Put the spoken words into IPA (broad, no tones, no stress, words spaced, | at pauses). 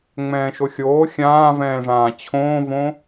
ŋ͡mɛ̃ːʃoxʲoː xʲãːvɛ̃ːʐãː t͡ɕʰõːvõ